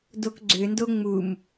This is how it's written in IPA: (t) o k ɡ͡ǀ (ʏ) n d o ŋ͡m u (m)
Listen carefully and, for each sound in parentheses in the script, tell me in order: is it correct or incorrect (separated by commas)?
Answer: incorrect, correct, correct